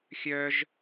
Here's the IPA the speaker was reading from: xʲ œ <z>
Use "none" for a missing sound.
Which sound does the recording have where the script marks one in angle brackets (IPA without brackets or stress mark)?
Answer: ʒ